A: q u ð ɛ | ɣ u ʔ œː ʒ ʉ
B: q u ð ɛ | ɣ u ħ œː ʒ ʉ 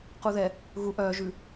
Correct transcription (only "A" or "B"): A